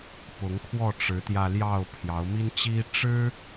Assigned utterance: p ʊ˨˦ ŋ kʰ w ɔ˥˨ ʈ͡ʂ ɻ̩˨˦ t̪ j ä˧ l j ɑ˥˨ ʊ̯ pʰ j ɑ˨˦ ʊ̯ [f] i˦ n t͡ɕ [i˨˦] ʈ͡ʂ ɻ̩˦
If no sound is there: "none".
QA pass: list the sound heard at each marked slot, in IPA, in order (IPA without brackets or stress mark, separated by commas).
m, i˦